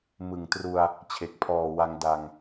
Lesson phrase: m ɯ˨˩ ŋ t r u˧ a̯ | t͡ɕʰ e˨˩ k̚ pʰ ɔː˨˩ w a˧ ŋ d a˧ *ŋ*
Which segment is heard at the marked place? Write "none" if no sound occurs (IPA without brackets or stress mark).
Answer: ŋ